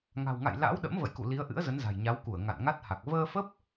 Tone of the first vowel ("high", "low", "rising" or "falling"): low